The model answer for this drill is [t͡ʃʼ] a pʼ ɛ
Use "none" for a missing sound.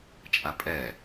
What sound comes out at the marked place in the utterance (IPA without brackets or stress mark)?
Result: t͡ʃʼ